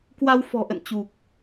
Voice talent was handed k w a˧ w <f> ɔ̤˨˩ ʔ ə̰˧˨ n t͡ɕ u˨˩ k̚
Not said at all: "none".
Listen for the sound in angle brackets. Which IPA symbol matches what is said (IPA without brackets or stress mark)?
f